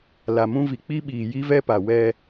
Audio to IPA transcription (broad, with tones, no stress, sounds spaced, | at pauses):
l a˨ m ũ˦ v i˨ k͡p i˦ ɓ iː˨ j i˦ v ɛ˦ p a˨ w ɛ˦